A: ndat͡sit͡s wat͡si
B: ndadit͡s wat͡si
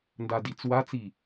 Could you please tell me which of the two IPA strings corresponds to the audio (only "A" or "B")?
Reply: B